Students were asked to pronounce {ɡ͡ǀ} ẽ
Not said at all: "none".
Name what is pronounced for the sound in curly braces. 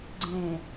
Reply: ɡ͡ǀ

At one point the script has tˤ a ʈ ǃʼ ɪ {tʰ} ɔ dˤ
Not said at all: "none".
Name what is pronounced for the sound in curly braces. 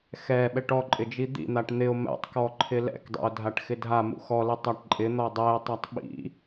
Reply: n̪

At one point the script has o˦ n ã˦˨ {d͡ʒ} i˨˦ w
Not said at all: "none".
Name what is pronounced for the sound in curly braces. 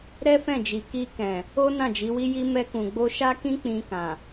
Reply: d͡ʒ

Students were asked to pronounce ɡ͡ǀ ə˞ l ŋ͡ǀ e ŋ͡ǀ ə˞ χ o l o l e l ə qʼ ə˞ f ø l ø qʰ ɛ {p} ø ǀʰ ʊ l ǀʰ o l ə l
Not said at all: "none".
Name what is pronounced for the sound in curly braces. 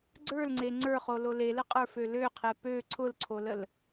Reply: p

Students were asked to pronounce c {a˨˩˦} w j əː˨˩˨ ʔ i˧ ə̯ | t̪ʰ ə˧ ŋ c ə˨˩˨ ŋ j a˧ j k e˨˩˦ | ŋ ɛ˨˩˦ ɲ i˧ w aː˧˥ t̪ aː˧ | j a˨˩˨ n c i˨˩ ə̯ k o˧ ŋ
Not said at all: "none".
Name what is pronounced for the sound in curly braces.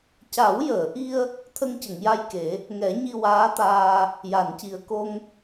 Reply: a˨˩˦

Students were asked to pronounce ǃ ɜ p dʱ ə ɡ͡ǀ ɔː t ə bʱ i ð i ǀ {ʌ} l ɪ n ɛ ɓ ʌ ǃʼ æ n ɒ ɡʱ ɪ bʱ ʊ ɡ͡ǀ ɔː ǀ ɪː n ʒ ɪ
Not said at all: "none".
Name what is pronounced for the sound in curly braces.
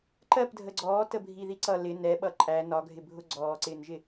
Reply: ʌ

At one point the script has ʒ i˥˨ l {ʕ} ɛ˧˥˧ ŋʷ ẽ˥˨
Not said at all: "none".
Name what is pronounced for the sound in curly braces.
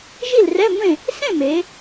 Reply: r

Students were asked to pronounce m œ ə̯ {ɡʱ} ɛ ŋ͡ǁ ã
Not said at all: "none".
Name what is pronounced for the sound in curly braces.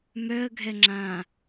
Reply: ɡʱ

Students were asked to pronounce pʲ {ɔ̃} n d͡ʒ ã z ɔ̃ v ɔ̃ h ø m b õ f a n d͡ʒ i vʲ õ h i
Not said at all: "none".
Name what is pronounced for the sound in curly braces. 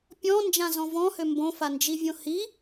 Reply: ɔ̃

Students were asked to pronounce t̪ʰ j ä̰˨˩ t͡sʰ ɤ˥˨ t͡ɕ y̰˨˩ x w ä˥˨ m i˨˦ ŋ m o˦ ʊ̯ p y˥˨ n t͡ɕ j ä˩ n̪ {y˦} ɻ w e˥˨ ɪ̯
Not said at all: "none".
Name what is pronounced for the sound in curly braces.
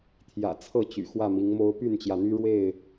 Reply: y˦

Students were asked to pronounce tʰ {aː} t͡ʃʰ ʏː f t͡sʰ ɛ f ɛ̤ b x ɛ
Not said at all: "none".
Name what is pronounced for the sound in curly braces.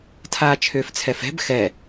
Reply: aː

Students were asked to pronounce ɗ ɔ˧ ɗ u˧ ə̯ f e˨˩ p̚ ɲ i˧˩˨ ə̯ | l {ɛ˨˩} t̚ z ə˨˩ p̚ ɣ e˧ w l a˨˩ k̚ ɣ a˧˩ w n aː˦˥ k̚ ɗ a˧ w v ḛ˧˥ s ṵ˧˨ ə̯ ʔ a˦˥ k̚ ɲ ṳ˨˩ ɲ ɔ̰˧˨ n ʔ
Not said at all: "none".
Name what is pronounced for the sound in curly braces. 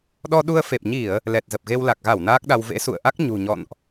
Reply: ɛ˨˩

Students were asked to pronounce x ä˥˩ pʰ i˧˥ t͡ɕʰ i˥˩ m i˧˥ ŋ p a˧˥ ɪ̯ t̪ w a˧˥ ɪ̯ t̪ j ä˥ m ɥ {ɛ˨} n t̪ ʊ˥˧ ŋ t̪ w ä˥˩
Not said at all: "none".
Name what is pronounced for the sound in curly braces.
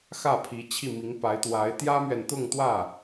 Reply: ɛ˨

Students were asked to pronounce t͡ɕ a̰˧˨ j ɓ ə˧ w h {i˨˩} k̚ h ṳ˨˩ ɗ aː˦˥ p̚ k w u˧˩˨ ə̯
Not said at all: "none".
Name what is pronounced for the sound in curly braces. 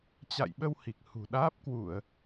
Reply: i˨˩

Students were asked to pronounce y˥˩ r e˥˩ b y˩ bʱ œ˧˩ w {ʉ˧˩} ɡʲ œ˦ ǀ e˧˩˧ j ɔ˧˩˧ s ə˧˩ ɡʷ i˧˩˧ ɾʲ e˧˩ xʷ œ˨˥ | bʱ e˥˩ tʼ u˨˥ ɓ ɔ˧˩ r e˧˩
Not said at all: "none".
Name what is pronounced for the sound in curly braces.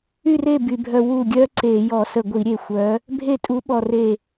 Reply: u˧˩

